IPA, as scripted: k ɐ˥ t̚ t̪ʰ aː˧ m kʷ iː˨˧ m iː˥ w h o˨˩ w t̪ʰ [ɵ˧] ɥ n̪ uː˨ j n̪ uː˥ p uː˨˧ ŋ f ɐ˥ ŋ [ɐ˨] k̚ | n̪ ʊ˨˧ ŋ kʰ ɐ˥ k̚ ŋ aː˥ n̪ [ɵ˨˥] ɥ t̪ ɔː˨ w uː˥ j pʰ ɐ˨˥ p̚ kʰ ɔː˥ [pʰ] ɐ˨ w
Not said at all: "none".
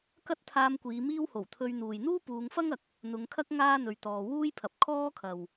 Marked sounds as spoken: ɵ˧, ɐ˨, ɵ˨˧, kʰ

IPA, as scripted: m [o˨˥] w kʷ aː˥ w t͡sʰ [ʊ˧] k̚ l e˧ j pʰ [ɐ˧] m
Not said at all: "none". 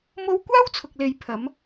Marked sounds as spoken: o˥, ʊ˧, ɐ˨˧

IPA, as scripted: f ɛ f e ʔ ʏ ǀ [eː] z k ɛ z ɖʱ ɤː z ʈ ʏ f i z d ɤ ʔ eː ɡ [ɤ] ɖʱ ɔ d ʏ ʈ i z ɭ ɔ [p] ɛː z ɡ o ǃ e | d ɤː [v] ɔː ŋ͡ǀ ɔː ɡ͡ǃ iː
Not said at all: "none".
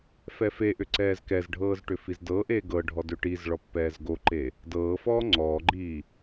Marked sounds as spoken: ɛː, ɤ, pː, f

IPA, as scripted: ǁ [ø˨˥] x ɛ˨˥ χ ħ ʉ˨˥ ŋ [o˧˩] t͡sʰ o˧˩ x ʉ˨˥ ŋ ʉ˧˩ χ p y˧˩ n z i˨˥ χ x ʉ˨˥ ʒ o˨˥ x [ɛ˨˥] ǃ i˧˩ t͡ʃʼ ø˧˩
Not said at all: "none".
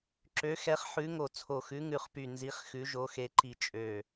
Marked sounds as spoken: ø˨˥, o˧˩, e˨˥

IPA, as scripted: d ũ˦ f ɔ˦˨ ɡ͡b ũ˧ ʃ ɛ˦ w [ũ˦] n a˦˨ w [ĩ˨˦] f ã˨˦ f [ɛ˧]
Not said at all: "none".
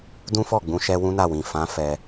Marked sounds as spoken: ũ˦, ĩ˨, ɛ˧

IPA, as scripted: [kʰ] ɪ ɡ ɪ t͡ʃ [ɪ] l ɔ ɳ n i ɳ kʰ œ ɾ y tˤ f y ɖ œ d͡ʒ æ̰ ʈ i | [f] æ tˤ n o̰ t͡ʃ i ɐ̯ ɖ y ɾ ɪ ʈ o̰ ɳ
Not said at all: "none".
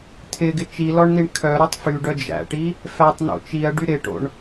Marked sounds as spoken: tʰ, i, f

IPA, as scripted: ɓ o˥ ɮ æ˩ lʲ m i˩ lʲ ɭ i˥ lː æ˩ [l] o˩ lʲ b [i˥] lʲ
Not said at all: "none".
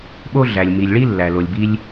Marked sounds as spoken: l, i˥

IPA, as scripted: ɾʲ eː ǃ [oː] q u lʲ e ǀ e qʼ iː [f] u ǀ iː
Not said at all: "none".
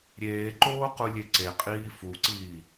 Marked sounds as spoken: oː, f

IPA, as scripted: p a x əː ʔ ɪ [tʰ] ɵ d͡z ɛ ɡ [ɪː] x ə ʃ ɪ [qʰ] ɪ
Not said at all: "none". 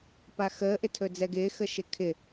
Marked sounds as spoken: tʰ, ɪː, kʰ

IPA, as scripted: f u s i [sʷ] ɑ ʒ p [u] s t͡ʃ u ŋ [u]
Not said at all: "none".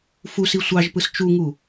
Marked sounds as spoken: sʷ, ɯ, u

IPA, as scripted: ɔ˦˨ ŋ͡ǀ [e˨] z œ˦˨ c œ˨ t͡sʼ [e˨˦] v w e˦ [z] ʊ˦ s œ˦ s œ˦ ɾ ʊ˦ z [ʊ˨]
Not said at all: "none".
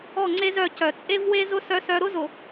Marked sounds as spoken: e˦, e˦, z, ʊ˨

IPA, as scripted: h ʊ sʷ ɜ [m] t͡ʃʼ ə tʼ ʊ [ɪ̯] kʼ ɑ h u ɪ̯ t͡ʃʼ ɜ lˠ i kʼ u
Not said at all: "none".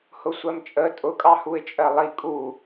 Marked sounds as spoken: m, none

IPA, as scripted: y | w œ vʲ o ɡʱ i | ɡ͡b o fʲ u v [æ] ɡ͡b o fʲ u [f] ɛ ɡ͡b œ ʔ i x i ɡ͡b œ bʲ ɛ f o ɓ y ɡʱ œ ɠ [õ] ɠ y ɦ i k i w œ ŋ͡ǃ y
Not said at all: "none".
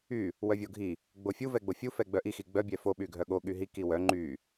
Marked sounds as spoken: ɛ, f, o

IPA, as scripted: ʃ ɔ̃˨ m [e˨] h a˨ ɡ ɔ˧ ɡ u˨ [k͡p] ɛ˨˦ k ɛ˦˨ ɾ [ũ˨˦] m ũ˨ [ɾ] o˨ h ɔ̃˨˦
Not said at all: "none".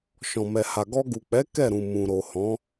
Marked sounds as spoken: ɛ˨, k͡p, ũ˨, ɾ

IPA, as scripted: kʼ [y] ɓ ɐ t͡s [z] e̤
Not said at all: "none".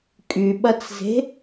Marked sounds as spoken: y, z

